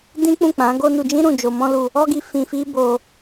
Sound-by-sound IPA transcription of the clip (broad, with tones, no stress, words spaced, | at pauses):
dĩ˦k͡pũ˦˨ k͡pã˨˦ɡo˦nu˧ d͡ʒĩ˦ɾũ˦˨ d͡ʒo˧mɔ̃˦lu˧ | ɔ˦ɡi˧ fĩ˧ fi˦bo˧